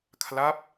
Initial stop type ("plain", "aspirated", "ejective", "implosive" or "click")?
aspirated